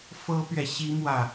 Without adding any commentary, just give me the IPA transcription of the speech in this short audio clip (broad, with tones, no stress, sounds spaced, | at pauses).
f ɤ˥ p ɥ ɛ˨ ɕ i˥ m w ä˥˩